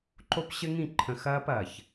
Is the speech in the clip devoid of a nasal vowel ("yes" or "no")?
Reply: no